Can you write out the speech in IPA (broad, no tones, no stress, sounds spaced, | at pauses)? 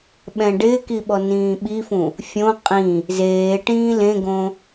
ɓ ɛ̃ ɖ ɪː k i ɓ ɔ n ĩː ɓ i f ũ | fʲ õ qʼ ĩ | z eː ʈ ĩː l ẽ ɡ õ